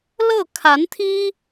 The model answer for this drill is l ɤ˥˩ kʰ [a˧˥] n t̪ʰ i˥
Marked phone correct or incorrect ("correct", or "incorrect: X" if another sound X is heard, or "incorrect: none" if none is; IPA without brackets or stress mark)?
correct